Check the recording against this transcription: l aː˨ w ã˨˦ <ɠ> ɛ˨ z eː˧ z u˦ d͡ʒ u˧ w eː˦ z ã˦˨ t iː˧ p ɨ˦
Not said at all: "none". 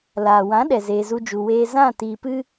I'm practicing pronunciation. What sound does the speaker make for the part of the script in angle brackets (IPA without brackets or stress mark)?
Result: ɗ